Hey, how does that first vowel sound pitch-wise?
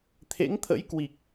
rising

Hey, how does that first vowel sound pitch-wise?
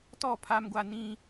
falling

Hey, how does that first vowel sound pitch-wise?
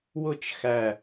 falling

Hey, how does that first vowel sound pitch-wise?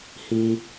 high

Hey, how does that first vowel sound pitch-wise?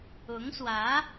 rising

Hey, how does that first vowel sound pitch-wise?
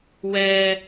high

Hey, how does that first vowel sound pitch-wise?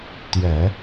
low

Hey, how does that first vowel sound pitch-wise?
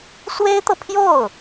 high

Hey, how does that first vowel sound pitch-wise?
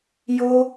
high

